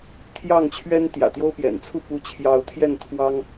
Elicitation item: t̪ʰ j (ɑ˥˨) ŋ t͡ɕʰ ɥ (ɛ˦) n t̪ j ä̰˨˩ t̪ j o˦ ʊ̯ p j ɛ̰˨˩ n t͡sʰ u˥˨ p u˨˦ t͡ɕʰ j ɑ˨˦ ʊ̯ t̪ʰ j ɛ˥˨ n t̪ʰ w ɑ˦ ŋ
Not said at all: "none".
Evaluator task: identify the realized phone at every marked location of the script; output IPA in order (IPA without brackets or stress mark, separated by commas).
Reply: ɑ˥˨, ɛ˦